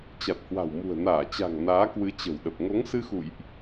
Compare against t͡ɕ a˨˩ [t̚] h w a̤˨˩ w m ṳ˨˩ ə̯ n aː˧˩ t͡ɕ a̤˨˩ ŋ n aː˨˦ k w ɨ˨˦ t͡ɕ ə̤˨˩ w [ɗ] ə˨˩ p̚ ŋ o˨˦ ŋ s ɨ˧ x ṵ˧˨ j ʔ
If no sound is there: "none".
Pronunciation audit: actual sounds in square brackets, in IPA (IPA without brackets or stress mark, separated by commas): t̚, ɗ